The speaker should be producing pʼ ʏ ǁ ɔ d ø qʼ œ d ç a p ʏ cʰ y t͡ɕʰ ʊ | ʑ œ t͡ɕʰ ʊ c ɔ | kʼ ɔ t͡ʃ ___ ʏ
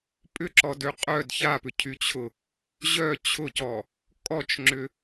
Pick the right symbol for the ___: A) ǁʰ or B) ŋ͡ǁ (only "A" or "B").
B